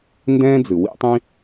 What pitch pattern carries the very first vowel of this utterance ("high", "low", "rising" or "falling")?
high